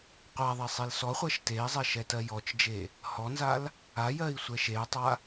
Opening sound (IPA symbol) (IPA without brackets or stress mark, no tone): qʷ